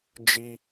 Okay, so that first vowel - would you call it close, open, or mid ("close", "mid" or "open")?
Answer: close